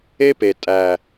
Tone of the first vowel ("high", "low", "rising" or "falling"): high